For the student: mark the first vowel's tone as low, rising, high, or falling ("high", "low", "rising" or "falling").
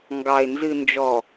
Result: low